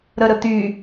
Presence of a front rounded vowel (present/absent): present